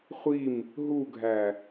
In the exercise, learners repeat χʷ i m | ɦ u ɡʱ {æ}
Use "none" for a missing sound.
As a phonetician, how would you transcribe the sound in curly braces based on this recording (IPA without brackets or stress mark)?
æ